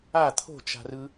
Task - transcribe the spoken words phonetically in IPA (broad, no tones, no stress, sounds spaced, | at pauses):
a t̪ʰ o̤ t͡ʃ a̤ r ɯ